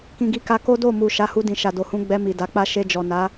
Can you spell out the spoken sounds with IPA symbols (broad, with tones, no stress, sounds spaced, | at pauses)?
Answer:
k ĩ˨ ɡ i˧ k a˧ k o˦ d o˦˨ m u˨ ʃ a˨˦ h u˧ d ĩ˨ ʃ a˨ d o˨ h ũ˧ ɡ͡b ɛ˧ m i˨ d a˨˦ k͡p a˦ ʃ e˧ d͡ʒ ɔ˨ n a˨˦